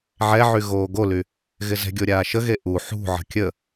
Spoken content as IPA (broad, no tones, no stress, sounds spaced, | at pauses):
ʕ ɛ ʕ y ɣ oː ɡ o l y | ɣ ɪ z ɛ̤ ɡʲ o ɾʲ aː ʃ ə ɣ e ʔ u ħ ṳ ʕ ə̤ kʲ ə